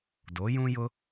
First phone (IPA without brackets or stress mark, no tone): d